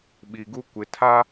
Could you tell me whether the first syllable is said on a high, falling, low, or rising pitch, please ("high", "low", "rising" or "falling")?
low